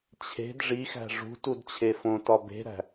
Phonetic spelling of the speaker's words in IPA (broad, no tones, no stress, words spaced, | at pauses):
t͡ɕʰe̤d ʐixæ̤ ʐṳtud t͡ɕʰefõtɒ be̤ɾæ̤